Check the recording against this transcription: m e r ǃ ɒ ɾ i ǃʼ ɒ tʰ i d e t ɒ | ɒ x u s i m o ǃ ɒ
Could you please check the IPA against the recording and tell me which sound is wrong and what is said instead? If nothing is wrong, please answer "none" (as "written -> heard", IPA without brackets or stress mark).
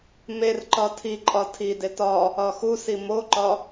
ɾ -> tʰ